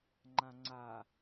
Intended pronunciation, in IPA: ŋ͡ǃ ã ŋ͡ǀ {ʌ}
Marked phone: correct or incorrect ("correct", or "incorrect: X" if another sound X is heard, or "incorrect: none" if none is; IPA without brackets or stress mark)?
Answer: incorrect: a